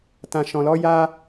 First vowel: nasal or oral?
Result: nasal